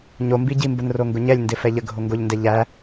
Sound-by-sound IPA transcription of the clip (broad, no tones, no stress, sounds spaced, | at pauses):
ɲ o m b i ɟ i m b ə n r o ŋ ɡ ʊ ɲ ɛ lʲ n d ɪ f ɛ ʎ ə ɡʱ o ŋ ɡ o ʎ n d ɛ ʎ æ